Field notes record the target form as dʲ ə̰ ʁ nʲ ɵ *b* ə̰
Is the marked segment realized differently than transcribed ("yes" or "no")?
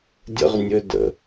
yes